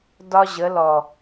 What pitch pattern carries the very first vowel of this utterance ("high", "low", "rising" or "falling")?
high